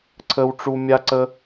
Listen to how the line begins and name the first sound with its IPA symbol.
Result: ǀʰ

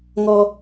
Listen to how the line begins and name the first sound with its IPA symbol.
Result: ŋ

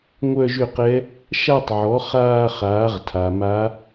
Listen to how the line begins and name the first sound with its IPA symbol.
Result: ŋʷ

